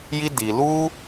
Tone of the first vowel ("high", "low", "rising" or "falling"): high